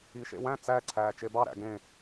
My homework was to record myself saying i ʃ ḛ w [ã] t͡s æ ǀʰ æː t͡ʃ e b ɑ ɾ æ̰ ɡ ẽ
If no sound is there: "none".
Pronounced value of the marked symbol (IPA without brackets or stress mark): æ̃